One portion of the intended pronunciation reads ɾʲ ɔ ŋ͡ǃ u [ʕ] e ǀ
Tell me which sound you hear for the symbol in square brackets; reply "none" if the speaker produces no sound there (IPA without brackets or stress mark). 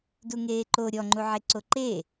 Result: ʕ